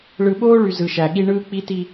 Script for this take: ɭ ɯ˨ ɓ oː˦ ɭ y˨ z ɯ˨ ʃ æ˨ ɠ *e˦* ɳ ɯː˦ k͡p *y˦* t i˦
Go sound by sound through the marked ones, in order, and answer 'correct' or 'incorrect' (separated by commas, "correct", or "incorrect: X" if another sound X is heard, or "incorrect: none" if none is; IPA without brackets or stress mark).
incorrect: i˦, incorrect: i˦